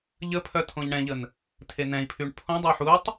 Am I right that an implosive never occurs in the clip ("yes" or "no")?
yes